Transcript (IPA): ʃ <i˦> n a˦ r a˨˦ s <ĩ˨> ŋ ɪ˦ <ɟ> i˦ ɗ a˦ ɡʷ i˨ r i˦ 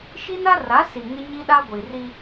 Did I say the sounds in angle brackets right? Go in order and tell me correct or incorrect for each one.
correct, incorrect, incorrect

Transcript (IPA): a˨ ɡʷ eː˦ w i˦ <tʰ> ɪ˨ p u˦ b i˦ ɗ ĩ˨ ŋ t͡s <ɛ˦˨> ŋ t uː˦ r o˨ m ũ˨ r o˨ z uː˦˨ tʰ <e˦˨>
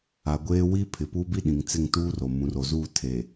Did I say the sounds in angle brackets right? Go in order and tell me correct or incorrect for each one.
incorrect, incorrect, incorrect

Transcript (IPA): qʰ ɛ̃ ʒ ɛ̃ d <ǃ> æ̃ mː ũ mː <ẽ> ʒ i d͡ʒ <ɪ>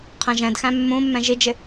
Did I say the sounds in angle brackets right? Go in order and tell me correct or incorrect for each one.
incorrect, incorrect, correct

